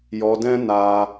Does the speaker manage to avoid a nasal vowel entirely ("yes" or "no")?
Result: no